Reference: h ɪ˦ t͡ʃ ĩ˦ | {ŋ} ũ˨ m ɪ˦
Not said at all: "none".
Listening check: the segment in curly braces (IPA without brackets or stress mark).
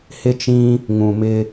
ŋ